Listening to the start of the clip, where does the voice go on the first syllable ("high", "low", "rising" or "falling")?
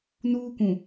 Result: high